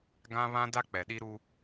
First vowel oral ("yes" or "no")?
no